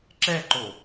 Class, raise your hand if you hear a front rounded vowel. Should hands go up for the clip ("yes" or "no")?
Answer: no